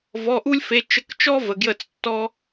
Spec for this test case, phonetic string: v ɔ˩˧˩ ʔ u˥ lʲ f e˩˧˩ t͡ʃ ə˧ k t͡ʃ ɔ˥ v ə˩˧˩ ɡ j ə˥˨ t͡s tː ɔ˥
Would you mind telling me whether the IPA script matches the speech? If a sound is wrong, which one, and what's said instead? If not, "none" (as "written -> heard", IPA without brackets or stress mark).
none